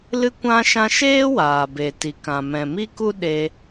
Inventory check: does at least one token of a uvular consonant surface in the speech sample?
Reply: no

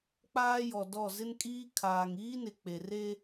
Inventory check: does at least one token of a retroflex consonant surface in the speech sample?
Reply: no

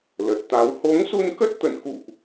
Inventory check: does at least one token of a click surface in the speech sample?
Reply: no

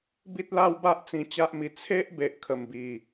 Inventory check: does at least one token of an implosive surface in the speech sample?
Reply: no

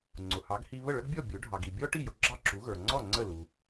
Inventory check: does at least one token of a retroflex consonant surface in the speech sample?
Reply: yes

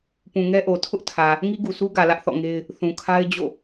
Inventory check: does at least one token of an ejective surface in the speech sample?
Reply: no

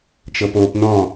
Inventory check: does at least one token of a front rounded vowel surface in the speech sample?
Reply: no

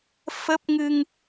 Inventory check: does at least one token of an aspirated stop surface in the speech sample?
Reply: no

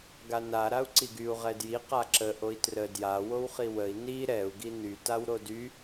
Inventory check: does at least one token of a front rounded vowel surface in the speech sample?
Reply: yes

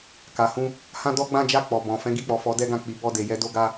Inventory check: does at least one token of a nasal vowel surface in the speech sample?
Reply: yes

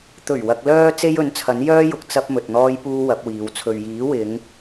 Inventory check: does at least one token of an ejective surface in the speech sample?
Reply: no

